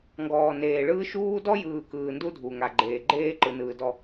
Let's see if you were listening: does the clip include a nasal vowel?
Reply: no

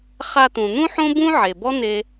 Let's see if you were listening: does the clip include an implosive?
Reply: no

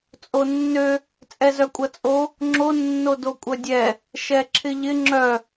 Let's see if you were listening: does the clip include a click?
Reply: yes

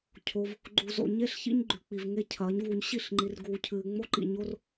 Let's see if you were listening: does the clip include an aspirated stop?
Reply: yes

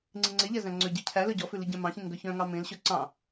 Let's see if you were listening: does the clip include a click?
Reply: yes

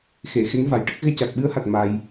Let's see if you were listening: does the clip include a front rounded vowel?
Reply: no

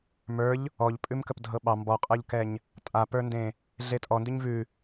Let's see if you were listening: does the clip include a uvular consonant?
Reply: yes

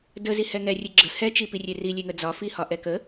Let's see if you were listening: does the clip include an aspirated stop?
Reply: no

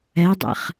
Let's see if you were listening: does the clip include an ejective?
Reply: no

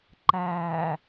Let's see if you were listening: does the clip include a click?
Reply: yes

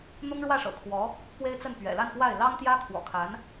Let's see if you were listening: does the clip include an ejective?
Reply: no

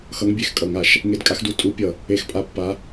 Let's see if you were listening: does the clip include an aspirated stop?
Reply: no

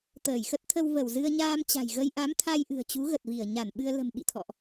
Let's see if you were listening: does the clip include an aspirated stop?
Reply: yes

